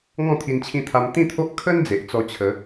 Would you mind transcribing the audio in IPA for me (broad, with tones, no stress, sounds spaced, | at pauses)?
ŋ ɔ̃˥˧ t̪ʰ i˧ n t͡ɕʰ ĩ˧ t̪ʰ a˧ m t̪ ĩ˥˧ t̪ʰ o˦ ʔ kʰ ə˦ n d͡z e˨ ʔ t͡s ɔ˧ t͡ɕʰ ə˨˦